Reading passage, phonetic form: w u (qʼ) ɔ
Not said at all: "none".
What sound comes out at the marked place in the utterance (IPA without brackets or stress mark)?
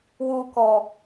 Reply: k